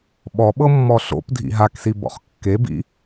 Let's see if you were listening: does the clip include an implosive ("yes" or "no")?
yes